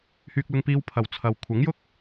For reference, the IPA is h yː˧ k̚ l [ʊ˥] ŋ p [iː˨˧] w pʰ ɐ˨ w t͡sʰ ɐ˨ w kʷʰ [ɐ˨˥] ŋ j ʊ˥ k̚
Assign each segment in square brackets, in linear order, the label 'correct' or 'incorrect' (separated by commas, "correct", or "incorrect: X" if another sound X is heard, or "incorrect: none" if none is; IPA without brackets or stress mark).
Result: incorrect: ʊ˧, incorrect: iː˧, correct